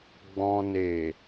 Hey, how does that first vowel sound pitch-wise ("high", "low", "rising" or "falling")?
low